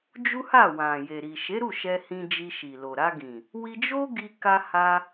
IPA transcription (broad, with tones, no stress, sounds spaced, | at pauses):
d͡ʒ u˦ h a˦˨ w ã˨ j e˨ ɾ i˨ ʃ e˨˦ ɾ u˦˨ ʃ ɛ˧ h ĩ˧ d͡ʒ i˧ ʃ i˨ l o˨ ɾ a˧ ɡ ĩ˨ | w i˧ d͡ʒ o˦ ɡ i˧ k a˧ h a˧